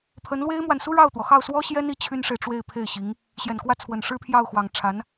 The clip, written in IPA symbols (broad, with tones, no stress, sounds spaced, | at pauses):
pʰ ə˧˥ n l w e˥ ɪ̯ m w a˨ n s u˥ ɻ ɑ˥˩ ʊ̯ t̪ w ɔ˩ x ɑ˥˩ ʊ̯ s w ɔ˥ ɕ j ɛ˥ n i˧˥ t͡ɕʰ y˥ n ʂ e˨ ɪ̯ ʈ͡ʂ w e˥˧ ɪ̯ pʰ e˥˩ ɪ̯ ɕ i˧˥ ŋ | ɕ j ɛ˨˩ n k w ä˥˩ t͡sʰ w ə˨˩ n ʂ ɻ̩˥ pʰ j ɑ˥˩ ʊ̯ x w ɑ˨˩ ŋ ʈ͡ʂʰ a˧˥ n